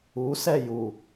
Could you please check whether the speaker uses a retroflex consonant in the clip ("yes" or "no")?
no